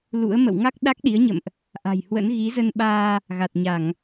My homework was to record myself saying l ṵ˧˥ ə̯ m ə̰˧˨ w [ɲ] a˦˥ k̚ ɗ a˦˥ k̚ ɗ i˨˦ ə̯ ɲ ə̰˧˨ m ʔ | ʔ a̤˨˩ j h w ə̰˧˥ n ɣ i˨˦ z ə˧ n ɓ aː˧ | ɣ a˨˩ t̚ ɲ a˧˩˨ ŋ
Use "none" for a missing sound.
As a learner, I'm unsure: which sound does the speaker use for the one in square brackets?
ŋ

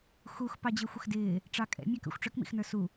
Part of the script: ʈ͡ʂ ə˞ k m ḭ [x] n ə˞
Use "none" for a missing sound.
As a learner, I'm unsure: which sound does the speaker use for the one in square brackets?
x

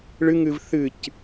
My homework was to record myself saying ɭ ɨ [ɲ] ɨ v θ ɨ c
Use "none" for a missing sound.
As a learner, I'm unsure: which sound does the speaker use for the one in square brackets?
ŋ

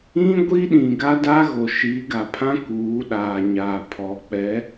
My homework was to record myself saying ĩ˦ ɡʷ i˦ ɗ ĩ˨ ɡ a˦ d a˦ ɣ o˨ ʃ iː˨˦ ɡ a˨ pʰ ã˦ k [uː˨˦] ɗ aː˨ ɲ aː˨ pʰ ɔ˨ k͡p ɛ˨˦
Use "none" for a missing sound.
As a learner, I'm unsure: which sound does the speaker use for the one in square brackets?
uː˨˦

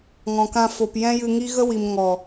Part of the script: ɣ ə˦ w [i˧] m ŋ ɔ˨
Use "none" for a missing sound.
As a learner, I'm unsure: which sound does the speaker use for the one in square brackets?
i˨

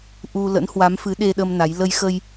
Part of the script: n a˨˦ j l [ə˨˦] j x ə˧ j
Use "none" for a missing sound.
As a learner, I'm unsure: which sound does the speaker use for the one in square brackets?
ə˧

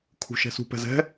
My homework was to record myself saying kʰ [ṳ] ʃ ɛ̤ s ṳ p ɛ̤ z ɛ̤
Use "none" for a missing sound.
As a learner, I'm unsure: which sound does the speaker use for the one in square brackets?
ṳ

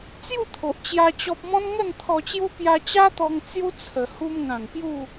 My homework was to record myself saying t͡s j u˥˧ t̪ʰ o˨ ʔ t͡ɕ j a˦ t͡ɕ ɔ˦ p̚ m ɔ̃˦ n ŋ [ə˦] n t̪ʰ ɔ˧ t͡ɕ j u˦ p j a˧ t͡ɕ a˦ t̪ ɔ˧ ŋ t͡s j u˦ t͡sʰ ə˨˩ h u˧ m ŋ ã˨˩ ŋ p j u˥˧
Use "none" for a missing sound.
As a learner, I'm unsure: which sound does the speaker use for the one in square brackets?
ə˥˧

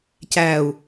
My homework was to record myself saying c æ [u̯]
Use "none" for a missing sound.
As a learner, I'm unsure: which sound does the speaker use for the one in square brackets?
u̯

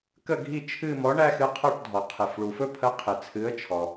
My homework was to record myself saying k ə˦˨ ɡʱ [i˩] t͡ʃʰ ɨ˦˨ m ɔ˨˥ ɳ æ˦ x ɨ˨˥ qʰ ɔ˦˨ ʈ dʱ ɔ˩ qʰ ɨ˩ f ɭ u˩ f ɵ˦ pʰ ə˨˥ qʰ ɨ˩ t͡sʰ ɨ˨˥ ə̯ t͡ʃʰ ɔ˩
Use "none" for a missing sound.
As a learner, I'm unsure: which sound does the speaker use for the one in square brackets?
i˦˨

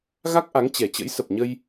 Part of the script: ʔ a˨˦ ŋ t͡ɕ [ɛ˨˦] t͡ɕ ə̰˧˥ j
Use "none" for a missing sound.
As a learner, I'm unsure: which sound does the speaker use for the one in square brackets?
ɛ˨˩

